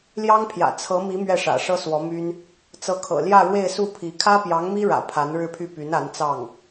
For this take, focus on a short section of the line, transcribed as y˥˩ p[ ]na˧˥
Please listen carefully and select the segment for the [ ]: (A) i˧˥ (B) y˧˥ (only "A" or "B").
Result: B